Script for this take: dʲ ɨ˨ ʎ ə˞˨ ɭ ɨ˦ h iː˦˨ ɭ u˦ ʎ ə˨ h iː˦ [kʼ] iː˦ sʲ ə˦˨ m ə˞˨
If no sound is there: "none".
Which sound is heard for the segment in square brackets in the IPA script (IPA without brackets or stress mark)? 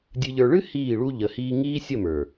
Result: ŋ